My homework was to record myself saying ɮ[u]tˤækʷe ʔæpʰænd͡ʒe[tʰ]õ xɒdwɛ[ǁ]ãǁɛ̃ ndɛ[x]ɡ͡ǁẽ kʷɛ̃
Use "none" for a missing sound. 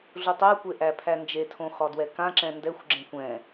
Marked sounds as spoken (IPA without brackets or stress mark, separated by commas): u, tʰ, k, xʷ